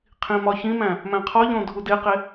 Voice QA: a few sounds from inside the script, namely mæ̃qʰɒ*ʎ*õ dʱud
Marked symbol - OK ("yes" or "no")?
yes